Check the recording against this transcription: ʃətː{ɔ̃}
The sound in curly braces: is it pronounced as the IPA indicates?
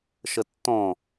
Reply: yes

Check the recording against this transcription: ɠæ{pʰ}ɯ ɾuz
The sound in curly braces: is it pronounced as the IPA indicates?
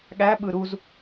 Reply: no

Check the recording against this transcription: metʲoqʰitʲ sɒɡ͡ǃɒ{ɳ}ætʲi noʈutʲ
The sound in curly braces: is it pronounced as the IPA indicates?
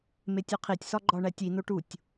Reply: yes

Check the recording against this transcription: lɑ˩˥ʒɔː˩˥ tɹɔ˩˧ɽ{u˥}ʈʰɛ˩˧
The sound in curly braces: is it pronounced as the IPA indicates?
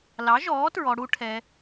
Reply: yes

